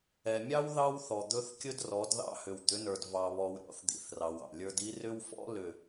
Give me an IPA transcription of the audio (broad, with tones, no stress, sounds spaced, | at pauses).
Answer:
ɛ˨ mʲ ɑ˦ w ð ɑ˦ w θ ɔ˨ d̪ ɵ˦ θ kʲ ɵ˦ d r ɔ˨˦ d ð ɑ̰˦ h ʏ˨ w d̪ ʏ˨˦ n ə˞˨ d v ɑ˨ β ɔ˨ w ɾʲ ɔ̰˨˦ θ d̪ ḭ˨ θ r ɑ˨ w ɑ̰˨ lʲ ə˞˦ d i˦ r ʏ˦ w f ɔ̰˦ l ʏ˨